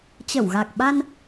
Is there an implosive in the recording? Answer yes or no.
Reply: yes